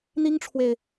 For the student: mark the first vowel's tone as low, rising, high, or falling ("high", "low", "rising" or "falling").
high